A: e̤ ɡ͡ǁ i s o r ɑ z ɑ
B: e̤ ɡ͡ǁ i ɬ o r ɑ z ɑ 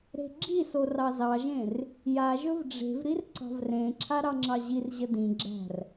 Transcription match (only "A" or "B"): A